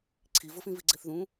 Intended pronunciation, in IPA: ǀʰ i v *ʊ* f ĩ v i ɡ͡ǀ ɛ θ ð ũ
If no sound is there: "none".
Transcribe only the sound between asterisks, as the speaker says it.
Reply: ʊ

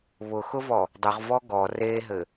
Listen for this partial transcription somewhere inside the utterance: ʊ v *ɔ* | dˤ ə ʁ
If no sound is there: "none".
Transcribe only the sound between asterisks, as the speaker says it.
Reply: ɔ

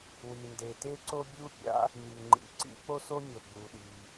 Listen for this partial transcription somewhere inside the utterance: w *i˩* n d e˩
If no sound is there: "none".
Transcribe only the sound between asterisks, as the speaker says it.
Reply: i˩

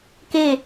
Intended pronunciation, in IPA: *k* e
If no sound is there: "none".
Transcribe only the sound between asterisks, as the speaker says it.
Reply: k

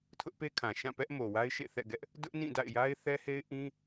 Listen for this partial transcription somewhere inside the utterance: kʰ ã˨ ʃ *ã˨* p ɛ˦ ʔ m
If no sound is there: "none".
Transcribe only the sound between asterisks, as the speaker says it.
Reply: ã˦˨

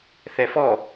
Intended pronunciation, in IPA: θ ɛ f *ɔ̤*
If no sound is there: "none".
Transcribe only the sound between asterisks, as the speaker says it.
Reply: ɔ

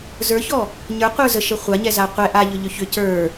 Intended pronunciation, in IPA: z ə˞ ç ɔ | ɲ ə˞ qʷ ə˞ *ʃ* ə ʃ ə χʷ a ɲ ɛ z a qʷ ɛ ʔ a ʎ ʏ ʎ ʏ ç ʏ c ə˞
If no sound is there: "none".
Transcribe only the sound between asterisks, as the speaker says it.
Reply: z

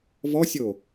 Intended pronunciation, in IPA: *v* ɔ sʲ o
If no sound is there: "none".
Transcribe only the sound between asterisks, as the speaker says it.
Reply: v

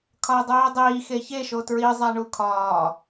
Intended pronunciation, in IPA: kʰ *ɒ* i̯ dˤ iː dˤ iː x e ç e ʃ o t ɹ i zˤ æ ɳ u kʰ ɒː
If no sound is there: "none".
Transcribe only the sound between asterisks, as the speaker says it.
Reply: ɒ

